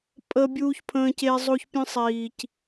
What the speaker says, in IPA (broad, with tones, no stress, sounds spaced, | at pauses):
pʼ əː˦ bʲ uː˦ ç pʰ ə̃ː˦ c e˦ zˤ o˦ ç pʲ ə̃˦ sˤ iː˨ c